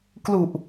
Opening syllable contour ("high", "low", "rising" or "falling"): low